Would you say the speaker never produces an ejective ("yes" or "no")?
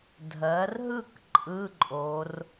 no